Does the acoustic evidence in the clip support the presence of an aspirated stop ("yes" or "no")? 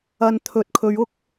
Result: yes